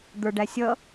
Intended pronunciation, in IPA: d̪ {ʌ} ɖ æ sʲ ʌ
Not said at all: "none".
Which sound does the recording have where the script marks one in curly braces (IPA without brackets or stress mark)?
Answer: ə˞